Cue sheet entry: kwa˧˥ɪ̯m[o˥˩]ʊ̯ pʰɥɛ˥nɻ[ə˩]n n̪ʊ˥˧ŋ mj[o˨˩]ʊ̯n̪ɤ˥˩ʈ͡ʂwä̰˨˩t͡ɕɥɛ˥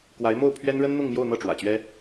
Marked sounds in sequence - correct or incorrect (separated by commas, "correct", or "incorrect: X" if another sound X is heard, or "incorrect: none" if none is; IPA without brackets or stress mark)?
correct, incorrect: ə˥, incorrect: o˥˧